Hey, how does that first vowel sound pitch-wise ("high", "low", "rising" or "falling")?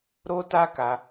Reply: high